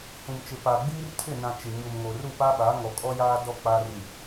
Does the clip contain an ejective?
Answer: yes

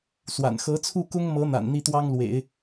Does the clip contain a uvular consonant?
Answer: no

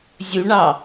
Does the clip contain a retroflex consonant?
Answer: yes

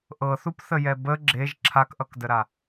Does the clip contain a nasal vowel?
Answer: no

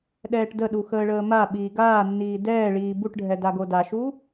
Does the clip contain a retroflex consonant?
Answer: yes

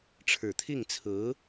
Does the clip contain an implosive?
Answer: no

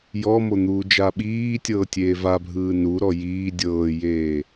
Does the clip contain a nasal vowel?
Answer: no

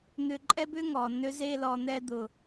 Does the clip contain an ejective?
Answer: yes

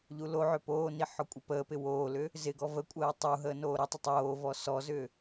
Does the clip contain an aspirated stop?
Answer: no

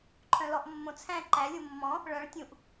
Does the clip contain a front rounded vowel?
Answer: yes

